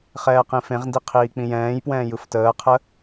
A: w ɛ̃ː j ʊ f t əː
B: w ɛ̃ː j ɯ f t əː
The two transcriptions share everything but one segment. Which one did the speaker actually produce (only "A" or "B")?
B